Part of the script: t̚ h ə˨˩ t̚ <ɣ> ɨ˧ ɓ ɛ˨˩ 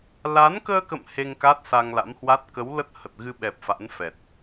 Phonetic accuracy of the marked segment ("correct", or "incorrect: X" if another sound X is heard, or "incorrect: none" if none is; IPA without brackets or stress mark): correct